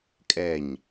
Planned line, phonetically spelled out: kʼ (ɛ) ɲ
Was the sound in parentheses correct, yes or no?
yes